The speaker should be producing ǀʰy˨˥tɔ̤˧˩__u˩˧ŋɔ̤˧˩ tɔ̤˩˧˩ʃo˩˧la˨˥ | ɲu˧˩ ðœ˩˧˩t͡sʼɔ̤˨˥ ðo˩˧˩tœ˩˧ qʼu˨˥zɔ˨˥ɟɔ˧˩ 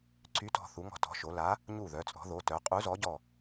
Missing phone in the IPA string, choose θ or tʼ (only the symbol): θ